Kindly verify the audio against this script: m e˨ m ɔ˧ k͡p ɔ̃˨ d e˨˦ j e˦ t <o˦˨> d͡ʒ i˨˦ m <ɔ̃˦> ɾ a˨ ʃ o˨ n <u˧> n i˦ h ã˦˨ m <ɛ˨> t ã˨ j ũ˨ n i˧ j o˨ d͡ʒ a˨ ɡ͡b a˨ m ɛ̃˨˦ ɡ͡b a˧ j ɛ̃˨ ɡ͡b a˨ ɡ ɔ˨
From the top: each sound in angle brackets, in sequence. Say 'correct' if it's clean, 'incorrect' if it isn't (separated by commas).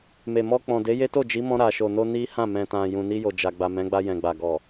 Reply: correct, incorrect, incorrect, incorrect